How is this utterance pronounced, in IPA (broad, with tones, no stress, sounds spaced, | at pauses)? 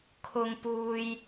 kʰ ʊ˥ ŋ p uː˥ j